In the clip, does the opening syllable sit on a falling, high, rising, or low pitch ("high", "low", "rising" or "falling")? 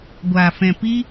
low